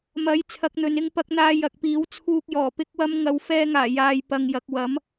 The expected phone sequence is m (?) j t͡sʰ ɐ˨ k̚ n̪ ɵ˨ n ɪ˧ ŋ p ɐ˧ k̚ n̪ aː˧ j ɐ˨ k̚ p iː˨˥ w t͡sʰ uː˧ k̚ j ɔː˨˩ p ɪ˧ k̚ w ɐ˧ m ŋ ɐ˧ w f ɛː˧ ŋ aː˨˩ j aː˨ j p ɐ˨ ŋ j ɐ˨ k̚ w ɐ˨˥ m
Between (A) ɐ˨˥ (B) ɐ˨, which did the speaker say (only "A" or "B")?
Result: A